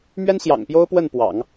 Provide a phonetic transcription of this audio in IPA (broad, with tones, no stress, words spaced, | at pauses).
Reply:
mɥɛ˥nɕjɑ̰˨˩ŋpjo˥ʊ̯ pwə˥˩npwɑ̰˨˩˦ŋ